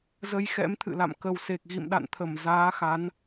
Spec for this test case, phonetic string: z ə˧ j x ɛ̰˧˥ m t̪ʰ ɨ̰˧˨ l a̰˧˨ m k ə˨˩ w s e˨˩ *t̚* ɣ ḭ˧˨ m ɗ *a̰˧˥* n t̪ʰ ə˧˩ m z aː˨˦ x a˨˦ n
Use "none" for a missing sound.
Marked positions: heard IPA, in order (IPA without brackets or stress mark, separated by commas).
k̚, a̰˧˨